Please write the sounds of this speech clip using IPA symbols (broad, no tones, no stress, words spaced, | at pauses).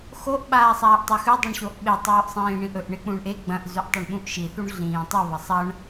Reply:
xoʔ ɓaːsˤaːʔtˤɐxʉ dˤuɳɕoʔɓe tˤʉːʔsˤĩːɳĩʔɵʔ ɳek͡pũɳʔe ɡ͡bɐ̃ʔ zʉʔtˤeɳɓũʔʃi θuɳɮĩːtˤi βɐsˤɐɳ